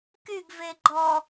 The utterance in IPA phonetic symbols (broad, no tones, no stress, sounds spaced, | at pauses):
k y ɡ v e ɡ͡ǃ ɔ